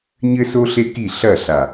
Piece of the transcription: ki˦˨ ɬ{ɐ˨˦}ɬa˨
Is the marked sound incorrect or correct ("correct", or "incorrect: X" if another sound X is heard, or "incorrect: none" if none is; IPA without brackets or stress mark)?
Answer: incorrect: ɐ˦˨